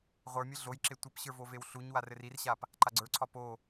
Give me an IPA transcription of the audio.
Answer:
ʁʷ ə˞ mʲ ɘ ɮ o j ǁ e tʷ ɘ p ɕ ə˞ v o v e w ɬ u ɲ w a r ɘ r i r ɕ a p | ǃ a ɡ͡ǀ ə˞ ǀʰ ɒ p o

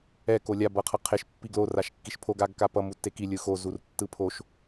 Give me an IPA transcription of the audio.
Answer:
ɛ k o lʲ a b ʌ qʰ ʌ qʰ e ʃ pː i ɡ l o r a ʃ kː i ʃ pʰ o ɡ a ɡ k a p ʌ m u tː e k i lʲ ɯ x o z u r tː ɯ pʰ o ʃ

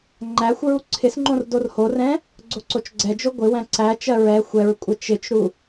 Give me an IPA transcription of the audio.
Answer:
ŋ͡ǃ æ xʷ ɹ u ǀʰ ɪ s ŋ͡ǃ õ r d o r h o r ɛ̃ | ɡ͡ǀ o ǀ o t͡ʃ ɡ͡ǀ ɛ d͡ʒ o ɡʷ ɪ w æ̃ ǀ æ t͡ʃ ɜ ɹ ɛ xʷ ɛ ɹ kʷʼ ɛ t͡ʃ ɪ t͡ʃ ɾ u

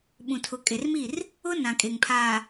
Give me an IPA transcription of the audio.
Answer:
ɓ ũ˨ tʰ ʊ˨ kʼ e˨ r m i˦˨ r | ʊ˦ n ã˨ kʼ e˨ ŋ pʰ aː˨

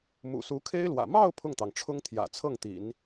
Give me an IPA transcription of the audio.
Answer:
m ṵ˨˩ s u˧˥ kʰ e˥ ɪ̯ l w ä̰˨˩ m ɑ˥˧ ʊ̯ pʰ ʊ˥˩ ŋ t̪ ɑ˩ ŋ ʈ͡ʂʰ ʊ˥ ŋ t̪ʰ j ä̰˨˩ t͡sʰ ɤ˥˩ ŋ t̪ ḭ˨˩˦ n

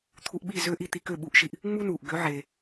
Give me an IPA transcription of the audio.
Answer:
t̪ʰ u˧ ʔ ɓ i˥˩ z øː˥ ʔ i˧ t̪ i˧ k ø˥˩ ɓ u˩˥ ʔ ʃ i˩ ʔ | ŋ͡m u˥ n uː˩ ʔ ɡ ø˩˥ ʕ eː˩

